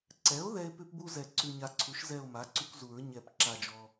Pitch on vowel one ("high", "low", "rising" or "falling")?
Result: rising